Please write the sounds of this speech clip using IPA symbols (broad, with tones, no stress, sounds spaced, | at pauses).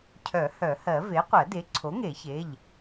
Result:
cʰ œ˨˩˦ h œ˨˩˦ h ɜ˨˩˦ v e˩˥ qʷ ɜ˨˩˦ d e˩˥ ǀʰ o˩˥ ŋ e˨˩˦ ç e˩˧˩ ʎ